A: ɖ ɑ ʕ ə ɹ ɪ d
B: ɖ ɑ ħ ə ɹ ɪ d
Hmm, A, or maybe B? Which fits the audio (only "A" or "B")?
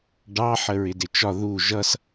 B